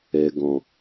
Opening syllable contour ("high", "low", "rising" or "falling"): low